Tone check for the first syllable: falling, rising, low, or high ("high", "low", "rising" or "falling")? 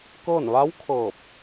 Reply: falling